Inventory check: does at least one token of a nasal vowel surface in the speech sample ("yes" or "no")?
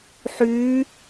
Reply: no